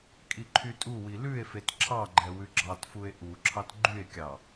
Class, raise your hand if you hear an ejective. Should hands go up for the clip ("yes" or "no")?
yes